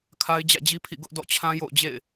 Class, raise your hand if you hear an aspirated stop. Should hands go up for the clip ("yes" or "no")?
yes